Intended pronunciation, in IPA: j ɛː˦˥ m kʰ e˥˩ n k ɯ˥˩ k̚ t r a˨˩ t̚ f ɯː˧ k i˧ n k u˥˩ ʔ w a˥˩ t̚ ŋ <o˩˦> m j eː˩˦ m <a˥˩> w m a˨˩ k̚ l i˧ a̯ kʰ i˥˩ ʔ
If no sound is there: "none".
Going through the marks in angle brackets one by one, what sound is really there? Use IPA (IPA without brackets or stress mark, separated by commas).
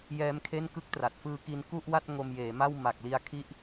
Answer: o˧, a˥˩